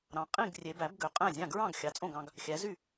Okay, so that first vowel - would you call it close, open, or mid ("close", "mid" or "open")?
open